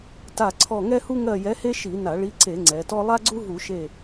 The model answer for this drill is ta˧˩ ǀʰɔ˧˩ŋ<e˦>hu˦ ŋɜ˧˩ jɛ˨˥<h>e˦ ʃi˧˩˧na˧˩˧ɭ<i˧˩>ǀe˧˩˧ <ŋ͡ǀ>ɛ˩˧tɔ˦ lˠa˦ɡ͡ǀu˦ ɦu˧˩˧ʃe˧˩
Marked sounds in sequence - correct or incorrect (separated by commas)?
incorrect, correct, incorrect, correct